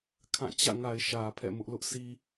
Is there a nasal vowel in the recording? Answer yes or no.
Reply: yes